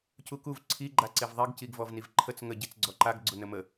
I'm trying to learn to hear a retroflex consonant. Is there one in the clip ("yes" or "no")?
no